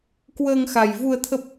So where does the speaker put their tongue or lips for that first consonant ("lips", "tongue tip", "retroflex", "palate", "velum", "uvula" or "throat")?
velum